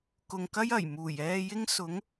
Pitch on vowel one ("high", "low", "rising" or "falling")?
low